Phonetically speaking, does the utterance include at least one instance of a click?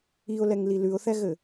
no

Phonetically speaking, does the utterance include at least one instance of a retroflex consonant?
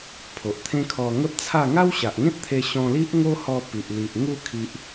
no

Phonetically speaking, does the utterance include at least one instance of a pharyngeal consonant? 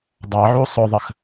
yes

